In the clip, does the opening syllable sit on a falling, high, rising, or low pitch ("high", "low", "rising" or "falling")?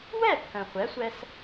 falling